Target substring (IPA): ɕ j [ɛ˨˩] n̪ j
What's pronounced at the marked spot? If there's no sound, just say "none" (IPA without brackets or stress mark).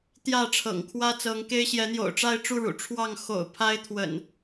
ɛ˨˦